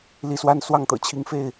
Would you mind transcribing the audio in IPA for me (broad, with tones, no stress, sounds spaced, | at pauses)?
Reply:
l i˨˦ s w a˦ n s w ɑ˥˨ ŋ t̪ ɤ̰˨˩ t͡ɕʰ i˨˦ ŋ f e˥˨ ɪ̯